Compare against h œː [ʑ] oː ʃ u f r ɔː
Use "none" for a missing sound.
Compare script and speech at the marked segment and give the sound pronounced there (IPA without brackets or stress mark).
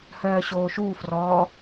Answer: ɕ